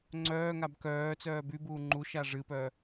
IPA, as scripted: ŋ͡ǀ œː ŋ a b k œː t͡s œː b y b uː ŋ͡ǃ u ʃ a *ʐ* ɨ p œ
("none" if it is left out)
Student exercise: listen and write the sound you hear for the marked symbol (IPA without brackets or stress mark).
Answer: ʐ